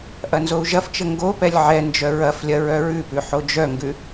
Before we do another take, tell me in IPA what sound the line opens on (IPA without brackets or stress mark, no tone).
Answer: ʔ